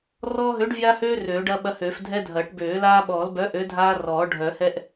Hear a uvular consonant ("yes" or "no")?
no